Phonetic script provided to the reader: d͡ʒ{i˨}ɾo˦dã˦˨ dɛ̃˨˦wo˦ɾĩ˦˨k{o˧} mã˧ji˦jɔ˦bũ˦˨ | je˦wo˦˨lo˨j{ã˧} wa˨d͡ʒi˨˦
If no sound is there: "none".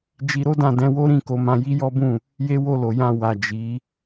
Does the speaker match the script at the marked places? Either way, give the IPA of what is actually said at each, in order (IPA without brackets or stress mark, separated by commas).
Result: i˧, o˨˦, ã˧